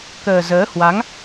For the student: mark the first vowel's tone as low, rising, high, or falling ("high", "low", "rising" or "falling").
low